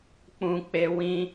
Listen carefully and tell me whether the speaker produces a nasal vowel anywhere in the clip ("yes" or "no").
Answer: yes